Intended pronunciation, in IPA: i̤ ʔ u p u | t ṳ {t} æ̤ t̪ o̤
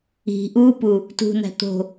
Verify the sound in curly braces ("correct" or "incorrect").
incorrect